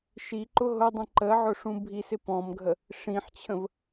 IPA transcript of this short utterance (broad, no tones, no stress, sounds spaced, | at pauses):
ʃ i ǃ ʊ ɦ ʊ dˤ ĩ ǃ ə ʕ ʊ ʂ ũ bʱ i s ɪ p ɔ̃ m ɡʱ ə | ʂ ĩ ħ t͡ɕʰ ə̃ v